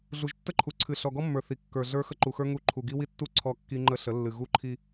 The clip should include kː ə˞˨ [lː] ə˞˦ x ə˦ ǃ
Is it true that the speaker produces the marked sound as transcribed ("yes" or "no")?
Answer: no